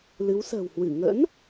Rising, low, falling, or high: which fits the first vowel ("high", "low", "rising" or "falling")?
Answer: rising